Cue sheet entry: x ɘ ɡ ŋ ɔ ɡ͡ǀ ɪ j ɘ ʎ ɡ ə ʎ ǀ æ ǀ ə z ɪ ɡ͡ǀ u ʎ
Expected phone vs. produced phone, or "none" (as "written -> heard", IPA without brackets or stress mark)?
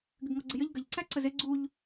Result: x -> ɡ